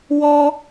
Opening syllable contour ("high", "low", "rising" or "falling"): high